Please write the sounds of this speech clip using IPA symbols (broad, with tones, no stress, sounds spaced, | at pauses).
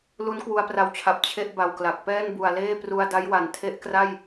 l u˦˥ n k w u˧ a̯ p r a˧ w t͡ɕʰ a˨˩ p̚ t͡ɕʰ e˥˩ ʔ b a˨˩ w k l a˨˩ k̚ p ɛː˥˩ n b u˨˩ a̯ l eː˥˩ p r u˧ a̯ d a˦˥ j w a˨˩ n tʰ e˦˥ ʔ k r a˥˩ j